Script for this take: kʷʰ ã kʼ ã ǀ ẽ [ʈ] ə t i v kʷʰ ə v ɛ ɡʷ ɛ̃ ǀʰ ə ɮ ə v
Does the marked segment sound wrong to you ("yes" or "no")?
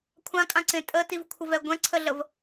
yes